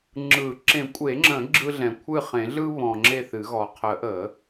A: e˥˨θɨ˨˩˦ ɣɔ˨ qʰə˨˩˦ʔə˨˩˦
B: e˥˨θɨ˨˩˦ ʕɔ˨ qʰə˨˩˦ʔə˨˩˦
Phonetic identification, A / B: A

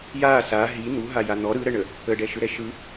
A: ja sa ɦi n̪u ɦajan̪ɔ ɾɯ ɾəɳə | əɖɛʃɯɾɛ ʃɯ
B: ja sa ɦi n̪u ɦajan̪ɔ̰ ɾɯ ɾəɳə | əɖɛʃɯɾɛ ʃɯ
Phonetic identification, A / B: A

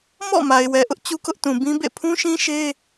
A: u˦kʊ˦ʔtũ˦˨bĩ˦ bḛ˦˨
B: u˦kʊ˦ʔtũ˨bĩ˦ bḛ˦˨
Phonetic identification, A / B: B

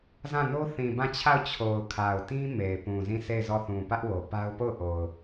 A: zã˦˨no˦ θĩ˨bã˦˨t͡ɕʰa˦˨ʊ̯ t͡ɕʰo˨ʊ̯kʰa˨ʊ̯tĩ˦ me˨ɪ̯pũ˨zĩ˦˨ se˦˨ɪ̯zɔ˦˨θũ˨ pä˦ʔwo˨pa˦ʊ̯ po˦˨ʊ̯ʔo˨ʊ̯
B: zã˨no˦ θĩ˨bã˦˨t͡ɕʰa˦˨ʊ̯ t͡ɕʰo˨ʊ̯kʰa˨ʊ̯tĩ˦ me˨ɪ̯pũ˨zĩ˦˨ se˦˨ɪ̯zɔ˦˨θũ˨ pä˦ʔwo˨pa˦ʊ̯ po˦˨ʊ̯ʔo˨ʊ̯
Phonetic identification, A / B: A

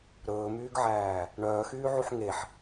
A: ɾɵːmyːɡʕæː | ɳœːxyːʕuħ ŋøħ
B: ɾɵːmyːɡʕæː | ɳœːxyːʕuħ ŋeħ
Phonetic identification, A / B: B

